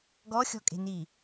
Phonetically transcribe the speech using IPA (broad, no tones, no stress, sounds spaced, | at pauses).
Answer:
ɡ ɔ xʲ ɔ̤ kʼ e̤ n i